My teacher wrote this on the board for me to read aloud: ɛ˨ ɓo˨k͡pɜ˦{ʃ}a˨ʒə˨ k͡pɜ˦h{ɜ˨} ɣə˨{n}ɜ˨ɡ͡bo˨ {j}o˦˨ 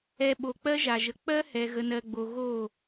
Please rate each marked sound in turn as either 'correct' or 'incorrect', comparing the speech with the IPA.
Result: incorrect: ʒ, incorrect: ɛ˨, correct, incorrect: ɣ

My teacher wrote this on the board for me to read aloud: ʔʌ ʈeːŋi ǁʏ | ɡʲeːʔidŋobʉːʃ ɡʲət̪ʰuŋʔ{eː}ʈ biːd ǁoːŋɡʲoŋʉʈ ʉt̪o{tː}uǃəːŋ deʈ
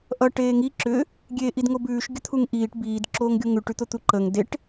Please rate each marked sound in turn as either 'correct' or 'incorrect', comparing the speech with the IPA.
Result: incorrect: iː, incorrect: t̪

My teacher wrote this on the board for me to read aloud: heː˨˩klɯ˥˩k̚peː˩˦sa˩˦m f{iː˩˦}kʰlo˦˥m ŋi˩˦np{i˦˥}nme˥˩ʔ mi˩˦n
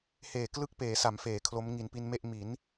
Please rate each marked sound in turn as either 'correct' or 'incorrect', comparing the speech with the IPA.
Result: incorrect: eː˩˦, incorrect: i˧

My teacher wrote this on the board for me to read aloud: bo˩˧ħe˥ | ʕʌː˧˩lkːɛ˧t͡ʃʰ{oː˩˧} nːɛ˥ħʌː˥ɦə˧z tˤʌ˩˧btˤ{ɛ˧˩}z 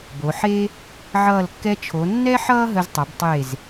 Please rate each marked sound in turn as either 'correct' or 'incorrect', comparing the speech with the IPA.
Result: incorrect: o˩˧, incorrect: e˧˩

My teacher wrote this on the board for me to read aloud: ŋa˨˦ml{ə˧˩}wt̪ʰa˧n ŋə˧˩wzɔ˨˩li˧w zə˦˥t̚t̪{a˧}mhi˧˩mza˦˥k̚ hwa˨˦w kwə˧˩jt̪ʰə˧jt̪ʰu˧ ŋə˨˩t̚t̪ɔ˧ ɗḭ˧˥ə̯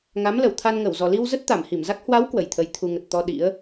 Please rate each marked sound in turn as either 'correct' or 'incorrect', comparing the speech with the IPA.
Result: correct, incorrect: a˧˩

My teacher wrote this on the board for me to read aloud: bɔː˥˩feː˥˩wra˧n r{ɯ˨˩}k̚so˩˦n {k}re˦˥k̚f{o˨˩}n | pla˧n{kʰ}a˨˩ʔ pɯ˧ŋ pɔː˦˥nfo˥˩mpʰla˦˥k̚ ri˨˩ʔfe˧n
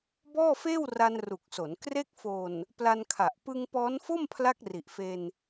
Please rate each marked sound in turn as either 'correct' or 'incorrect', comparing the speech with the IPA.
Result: incorrect: u˨˩, correct, correct, correct

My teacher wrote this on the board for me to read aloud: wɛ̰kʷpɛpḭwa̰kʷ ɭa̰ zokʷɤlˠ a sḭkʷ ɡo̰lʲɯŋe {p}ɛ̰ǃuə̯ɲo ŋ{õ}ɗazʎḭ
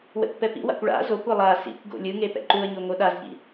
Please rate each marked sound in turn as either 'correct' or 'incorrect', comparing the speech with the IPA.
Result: correct, incorrect: o

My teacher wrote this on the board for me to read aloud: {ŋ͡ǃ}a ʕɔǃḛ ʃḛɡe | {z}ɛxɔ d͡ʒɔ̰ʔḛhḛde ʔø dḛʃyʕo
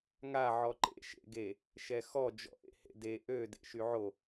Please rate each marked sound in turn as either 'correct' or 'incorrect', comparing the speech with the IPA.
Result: incorrect: ŋ, incorrect: ʃ

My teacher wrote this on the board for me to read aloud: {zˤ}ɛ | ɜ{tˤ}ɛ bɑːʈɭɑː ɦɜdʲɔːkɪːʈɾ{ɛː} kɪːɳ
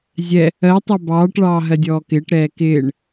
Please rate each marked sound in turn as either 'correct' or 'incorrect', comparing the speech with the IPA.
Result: incorrect: zʲ, correct, correct

